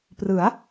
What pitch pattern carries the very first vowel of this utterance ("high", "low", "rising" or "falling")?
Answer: rising